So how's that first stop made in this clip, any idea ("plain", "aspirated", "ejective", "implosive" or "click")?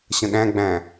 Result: implosive